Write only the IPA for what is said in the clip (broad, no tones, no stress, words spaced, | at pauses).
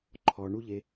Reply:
ǃʰɔɳuʎe